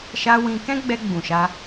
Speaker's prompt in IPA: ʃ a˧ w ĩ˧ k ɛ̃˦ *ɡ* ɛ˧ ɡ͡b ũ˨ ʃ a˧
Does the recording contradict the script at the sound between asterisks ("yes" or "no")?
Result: yes